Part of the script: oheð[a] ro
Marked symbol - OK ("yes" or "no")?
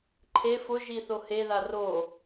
yes